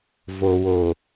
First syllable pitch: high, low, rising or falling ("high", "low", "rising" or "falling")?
low